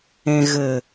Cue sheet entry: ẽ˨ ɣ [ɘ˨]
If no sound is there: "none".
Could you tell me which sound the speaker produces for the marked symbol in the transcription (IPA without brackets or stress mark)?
ɘ˨